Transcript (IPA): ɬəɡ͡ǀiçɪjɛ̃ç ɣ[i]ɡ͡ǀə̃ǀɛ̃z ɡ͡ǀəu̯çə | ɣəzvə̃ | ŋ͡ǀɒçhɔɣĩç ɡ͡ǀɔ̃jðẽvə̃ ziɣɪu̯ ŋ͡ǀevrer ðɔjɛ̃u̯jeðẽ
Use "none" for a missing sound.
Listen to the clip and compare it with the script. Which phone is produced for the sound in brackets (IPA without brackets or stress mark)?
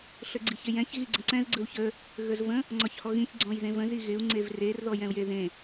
i